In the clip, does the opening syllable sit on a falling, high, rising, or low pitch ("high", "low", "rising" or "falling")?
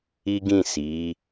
high